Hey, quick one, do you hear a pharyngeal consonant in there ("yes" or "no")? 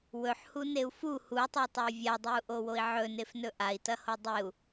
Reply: yes